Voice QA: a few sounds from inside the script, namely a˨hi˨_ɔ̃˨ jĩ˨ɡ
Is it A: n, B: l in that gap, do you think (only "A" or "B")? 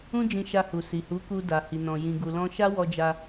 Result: A